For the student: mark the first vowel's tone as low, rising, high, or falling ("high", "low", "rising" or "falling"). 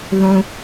low